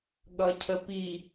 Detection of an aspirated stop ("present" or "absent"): present